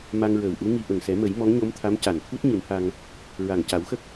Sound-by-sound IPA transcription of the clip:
m a˧ ŋ ɹ əː˨˩ w ʔ u˧˥ ŋ i˧ ʔ ə˨˩ ŋ s ɛ˨˩˦ m ə˨˩˦ j m ɔ˧˥ ŋ ɲ o˧˥ m t̪ʰ a˧˥ m c a˨˩ n t̪ʰ u˦˥ t̚ ɲ ɨ˨˩˦ n h a˧ ŋ | ɹ a˨˩ ŋ c a˨˩˦ w x ə˦˥ k̚

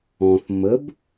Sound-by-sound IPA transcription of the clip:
ɔ̃ θ m ə b

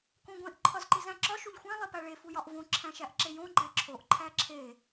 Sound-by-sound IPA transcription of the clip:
k õ ɡʷ ẽ ʔ ǃʰ ɒ z ǃ i z æ̃ ǁ ɒ ʃ u ʎ xʷ æ̃ lˠ i p æ ɭ e f u j ɒ ʔ v õ ǁʰ æ̃ ʃ æ ʔ ǁ e j õ ɡ͡ǃ æ ǁʰ o ʔ ǃʰ æ ǁʰ e

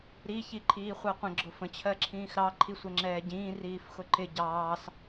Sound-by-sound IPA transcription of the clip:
ɾ i ç i ǃʰ iː χʷ ɜ qʷ ə̃ ɡ͡ǁ ʊ f ə̃ t͡ɕʰ ɜ ǁʰ ĩː x ɾ ɑ ǃʰ i sʷ ɛ ŋ͡ǁ ɛː ɟ ĩː r iː f x ʊ ǃ ɪ ɟ ɑː s

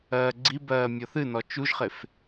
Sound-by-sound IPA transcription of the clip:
ɜː ɡ͡ǀ i b ɜː mʲ ɔ θ ɨ n ɔ t͡ʃ u ʒ χ e f

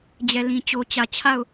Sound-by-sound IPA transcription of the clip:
d͡ʑ ɛ˨ l ĩ˨ t͡ɕ o˨ t͡ɕ ä˨ t͡ɕʰ a˦˨ ʊ̯

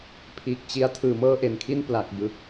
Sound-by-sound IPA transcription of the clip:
pʰ iː˨˩ k̚ t͡ɕ i˧ a̯ tʰ ɯː˨˩ m ɤː˥˩ ʔ e˨˩ n kʰ i˥˩ n p l a˨˩ k̚ b ɯ˨˩ k̚

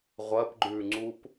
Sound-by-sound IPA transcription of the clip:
ʁʷ ɐ p ɡ͡ǃ ʉ ŋ͡ǀ u p

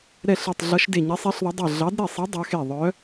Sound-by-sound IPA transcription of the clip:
ɾ ɛ˧˩ ɬ e˧˩ tˤ ɮ ʌ˨˦ ʃ d e˧˩ ɲ ɛ˨˦ sˤ i˨˦ ɬ ðˤ ʌ˨˦ dˤ e˧˩ ɮ ɑ˨˦ d ɾ e˧˩ sˤ i˨˦ dˤ ʌ˨˦ x e˧˩ ðˤ œ˨˦

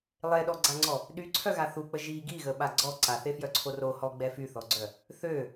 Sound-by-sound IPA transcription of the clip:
lˠ e ɗ ɔ ɡ͡ǀ a ŋ͡ǀ ɔ | ɗ y ǀʰ œ ɣ a θ u k͡p ə ʒ i ɡ i ɣ ə ɓ a ɡ͡ǀ ɔ ǀ a θ e f j œ ǀʰ o r o h ɔ ɡ͡b ɛ f y θ ɔ ɡ͡ǀ œ | θ ø

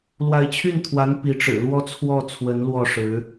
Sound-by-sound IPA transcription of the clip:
l w a˧˥ ɪ̯ t͡ɕʰ y˥˩ n t̪ʰ w a˧˥ n p i˧˥ ʈ͡ʂ ɻ̩˨˩ l w ɔ˥ t͡sʰ w ɔ˥˩ t͡sʰ w ə˧˥ n l w ɔ˥˩ ʂ ɻ̩˧˥

